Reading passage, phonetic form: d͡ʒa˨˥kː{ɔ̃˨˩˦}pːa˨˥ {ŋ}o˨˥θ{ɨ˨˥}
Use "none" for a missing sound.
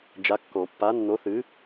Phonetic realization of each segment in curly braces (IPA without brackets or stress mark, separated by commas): ɔ̃˨˩˦, nː, ɨ˨˥